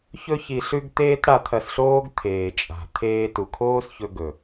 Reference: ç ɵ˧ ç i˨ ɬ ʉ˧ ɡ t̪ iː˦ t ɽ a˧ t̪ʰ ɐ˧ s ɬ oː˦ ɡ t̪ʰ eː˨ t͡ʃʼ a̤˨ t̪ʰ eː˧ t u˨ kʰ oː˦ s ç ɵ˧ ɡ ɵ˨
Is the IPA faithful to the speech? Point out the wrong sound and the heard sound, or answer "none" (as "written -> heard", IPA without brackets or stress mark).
iː˦ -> eː˦